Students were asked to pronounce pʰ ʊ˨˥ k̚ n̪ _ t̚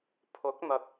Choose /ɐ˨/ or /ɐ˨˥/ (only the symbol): ɐ˨